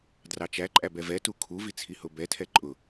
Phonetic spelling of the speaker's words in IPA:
d r ɑ t͡ʃ æ ǃʼ æ b ɛ v ɛ t u kʰ u v i t͡sʰ i h ʊ b ɛ tʰ ɛ ǃʼ ʊ

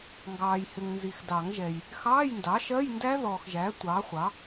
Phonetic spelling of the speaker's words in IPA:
ŋ ɡ ɑː˨ j h ɪ˨ ŋ n z i˨ x d ɑ˨˩˦ ŋ ʒ ɛ˨ j | x ɑː˧˥˧ j n d ɑ˩˥ ʃ ɜ˧˥˧ j n d æ˦˥ ð ɔː˨ x ʒ æ˩˥ tʷ ɑː˩˥ χʷ ɑ˩˥

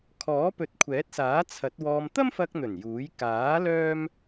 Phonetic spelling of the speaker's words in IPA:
kʰ ɔː˨˥ p ɵ˨˥ t̚ kʷʰ ɛː˨˥ t̚ s aː˨˥ t͡sʰ ɐ˨˥ t̚ w ɔː˧ m t̪ ɐ˥ m f ɐ˧ k̚ n̪ ɵ˨˩ n j uː˨˥ j k aː˨˥ l œː˥ m

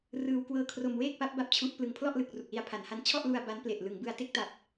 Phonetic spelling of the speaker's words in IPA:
r ɯː˧ w k w ɤː˧ kʰ r o˧ m w eː˥˩ k̚ p a˦˥ p̚ b a˦˥ p̚ t͡ɕʰ u˦˥ ʔ p l ɯ˨˩ ŋ pʰ l ɔ˥˩ ʔ l ɯ˨˩ k̚ r u˨˩ k̚ l i˧ a̯ pʰ a˩˦ n h a˦˥ n t͡ɕʰ ɔ˥˩ ʔ l u˧ a̯ b a˦˥ n p l e˨˩ ʔ l ɯ˩˦ ŋ b ɯ˧ a̯ t e˦˥ k̚ t a˨˩ p̚

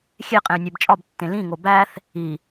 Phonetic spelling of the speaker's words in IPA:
xʲ e qʼ ẽ y̯ nʲ æ b t͡ʃʼ ɒ b tː ẽ l ĩ ŋ o b æ θ | i

